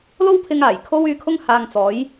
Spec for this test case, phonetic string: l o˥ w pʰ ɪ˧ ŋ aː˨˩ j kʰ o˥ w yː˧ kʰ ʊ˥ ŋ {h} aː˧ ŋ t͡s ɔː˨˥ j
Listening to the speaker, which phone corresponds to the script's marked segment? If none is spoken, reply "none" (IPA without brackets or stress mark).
h